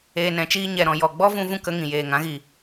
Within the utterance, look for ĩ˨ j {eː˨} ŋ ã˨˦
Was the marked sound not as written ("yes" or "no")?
no